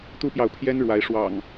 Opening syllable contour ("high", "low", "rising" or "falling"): high